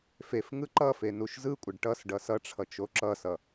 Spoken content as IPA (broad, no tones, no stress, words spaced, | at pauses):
fef ŋɯǃʌfe nuʃzɯkʷʼʌɖ ʈʌs ɖʌsʌʈ͡ʂʰʌ t͡ʃoǁʌsʌ